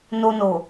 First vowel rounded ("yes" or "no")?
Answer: yes